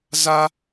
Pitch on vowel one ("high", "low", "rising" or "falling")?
high